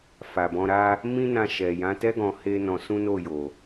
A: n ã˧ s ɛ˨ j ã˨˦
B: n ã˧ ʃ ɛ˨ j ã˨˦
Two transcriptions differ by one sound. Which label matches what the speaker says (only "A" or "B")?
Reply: B